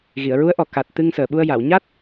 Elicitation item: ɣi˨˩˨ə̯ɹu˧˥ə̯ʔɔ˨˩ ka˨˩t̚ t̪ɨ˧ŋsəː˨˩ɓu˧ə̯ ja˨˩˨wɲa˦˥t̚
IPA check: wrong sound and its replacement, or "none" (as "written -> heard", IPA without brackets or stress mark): none